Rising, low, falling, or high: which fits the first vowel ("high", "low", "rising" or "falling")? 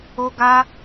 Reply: high